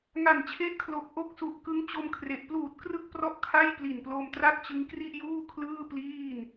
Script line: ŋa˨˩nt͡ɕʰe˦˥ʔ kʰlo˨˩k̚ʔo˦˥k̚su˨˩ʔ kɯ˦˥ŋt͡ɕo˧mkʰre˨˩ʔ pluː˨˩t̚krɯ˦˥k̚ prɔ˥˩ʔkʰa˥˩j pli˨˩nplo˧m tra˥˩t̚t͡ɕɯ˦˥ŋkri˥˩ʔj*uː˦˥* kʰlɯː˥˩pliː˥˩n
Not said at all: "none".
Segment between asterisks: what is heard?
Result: uː˥˩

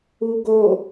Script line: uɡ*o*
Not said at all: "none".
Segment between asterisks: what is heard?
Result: o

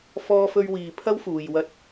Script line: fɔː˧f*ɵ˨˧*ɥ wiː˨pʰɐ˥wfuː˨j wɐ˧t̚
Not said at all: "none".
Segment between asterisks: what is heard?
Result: ɵ˧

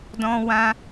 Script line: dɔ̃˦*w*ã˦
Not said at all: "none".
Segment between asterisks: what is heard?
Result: w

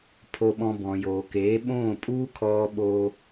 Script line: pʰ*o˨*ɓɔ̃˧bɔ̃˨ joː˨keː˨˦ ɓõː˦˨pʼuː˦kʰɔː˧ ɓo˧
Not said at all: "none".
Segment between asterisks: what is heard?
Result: o˧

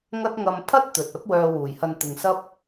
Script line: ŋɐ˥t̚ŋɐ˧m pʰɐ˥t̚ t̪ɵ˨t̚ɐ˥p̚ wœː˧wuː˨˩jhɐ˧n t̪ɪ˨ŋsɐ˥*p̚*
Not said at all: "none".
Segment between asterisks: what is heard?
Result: p̚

